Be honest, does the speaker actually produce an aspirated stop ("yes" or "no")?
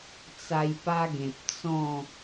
no